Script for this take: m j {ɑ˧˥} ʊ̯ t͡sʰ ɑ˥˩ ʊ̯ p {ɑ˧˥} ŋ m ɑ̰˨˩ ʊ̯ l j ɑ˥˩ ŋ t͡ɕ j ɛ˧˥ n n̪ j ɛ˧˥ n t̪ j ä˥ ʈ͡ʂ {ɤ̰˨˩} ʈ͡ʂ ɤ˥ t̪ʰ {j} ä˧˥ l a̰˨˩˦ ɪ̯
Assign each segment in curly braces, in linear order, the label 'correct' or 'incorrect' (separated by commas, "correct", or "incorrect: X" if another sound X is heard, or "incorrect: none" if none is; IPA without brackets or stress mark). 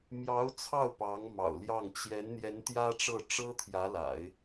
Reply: correct, correct, incorrect: ɤ˥˩, correct